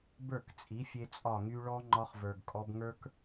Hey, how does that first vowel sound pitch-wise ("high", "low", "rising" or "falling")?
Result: falling